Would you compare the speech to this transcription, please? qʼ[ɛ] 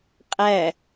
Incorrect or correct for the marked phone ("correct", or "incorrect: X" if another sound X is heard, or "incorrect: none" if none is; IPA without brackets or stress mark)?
incorrect: æ